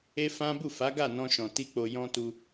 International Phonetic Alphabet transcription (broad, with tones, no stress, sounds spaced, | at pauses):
e˦ f ã˦ b u˦˨ f a˨˦ ɡ a˦˨ n ɔ̃˧ ʃ ɔ̃˨ t i˧ k͡p o˨ j ɔ̃˧ t u˧